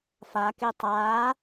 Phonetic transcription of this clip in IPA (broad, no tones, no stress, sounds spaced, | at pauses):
f a k e tˤ aː